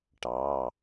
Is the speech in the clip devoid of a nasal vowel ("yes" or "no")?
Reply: yes